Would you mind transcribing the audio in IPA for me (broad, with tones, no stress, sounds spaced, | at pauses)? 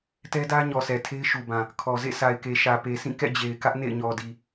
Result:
t ɛ˦ d ä˦ ɲ ɔ˨ s ɛ˨ tʰ e˦ ɪ̯ ʃ u˨ b ã˨ | kʰ ɔ˨ z ḛ˦˨ s a˨ ɪ̯ k e˨ ʃ ä˨ p e˨ s ĩ˦˨ k ɛ̰˦˨ d͡ʑ e˨ ɪ̯ k ä˦ ʔ n ḛ˦˨ ɪ̯ ɲ ɔ˨ d i˨